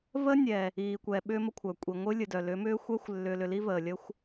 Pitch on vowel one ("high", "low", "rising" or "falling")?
high